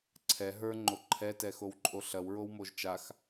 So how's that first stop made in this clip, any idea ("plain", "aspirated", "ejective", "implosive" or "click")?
click